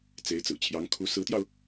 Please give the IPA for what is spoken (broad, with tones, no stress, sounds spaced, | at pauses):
t͡s e˧˥ ɪ̯ t͡s ɹ̩˨˩ t͡ɕʰ j ɑ˧˥ ŋ kʰ u˧˥ s ɹ̩˧˥ t̪ j ɑ˧ ʊ̯